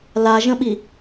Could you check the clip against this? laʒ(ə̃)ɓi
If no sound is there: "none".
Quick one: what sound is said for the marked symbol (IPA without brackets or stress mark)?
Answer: ə̃